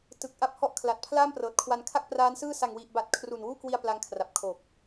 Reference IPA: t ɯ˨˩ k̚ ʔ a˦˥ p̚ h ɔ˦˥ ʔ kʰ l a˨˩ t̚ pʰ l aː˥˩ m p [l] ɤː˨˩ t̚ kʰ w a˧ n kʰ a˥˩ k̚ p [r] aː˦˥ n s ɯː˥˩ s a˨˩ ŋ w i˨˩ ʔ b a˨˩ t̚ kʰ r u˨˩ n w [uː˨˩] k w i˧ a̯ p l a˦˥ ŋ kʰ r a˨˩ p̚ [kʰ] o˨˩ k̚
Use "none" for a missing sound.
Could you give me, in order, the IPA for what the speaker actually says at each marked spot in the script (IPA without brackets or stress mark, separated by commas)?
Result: r, r, uː˥˩, kʰ